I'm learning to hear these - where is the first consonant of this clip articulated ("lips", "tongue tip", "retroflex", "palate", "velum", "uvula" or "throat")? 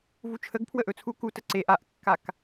lips